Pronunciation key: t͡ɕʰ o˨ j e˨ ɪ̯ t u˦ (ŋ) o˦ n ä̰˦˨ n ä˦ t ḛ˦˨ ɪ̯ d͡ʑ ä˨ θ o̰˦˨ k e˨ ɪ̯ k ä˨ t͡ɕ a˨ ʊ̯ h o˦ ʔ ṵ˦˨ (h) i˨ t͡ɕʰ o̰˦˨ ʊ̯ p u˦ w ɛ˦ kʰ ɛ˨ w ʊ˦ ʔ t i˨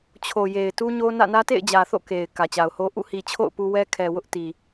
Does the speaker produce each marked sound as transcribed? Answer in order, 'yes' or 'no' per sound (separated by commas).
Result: no, yes